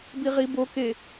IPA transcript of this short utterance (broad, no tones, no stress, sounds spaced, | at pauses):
b i ʁ i b o k e